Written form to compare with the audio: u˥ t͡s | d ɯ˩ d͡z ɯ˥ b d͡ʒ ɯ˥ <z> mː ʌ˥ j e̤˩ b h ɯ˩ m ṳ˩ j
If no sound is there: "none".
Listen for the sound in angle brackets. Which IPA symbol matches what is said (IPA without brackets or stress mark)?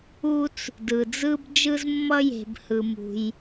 z